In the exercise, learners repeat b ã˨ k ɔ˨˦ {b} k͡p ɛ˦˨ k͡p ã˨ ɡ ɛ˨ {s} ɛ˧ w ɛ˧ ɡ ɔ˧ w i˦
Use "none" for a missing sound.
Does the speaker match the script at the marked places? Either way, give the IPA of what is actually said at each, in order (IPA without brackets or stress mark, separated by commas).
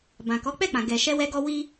none, ʃ